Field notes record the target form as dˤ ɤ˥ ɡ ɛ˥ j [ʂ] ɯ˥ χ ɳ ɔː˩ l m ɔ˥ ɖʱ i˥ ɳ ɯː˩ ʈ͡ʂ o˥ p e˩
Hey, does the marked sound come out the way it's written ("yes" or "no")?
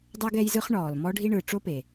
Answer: no